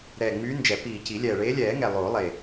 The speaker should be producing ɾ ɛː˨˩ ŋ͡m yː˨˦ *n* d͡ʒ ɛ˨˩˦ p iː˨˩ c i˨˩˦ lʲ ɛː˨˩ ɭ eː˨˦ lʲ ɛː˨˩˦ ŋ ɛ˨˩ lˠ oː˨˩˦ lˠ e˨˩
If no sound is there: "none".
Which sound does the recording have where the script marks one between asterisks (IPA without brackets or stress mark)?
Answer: n